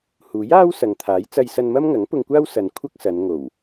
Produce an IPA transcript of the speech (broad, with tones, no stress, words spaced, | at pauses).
huː˨˥jaː˥w sɐ˨ŋt̪ʰaː˨˥j t͡sɐ˧jsɐ˧nmɐ˥m ŋɐ˨˥ŋpʊ˧ŋkʷaː˥wsɐ˨n kʷʰɐ˥k̚sɐ˨˧n ŋo˨˩w